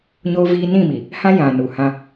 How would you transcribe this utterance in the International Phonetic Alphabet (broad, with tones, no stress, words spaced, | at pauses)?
ɲoː˦viː˦ nĩ˦˨mi˨ | hã˦ jã˨ nu˨hã˦